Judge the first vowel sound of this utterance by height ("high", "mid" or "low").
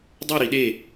mid